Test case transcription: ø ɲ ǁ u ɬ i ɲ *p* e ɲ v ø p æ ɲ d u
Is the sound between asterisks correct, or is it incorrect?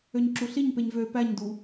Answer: correct